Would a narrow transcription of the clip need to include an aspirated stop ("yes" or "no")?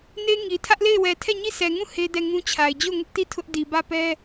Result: yes